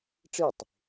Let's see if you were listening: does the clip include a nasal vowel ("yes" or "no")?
no